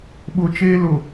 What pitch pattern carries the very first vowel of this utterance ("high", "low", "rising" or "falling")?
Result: high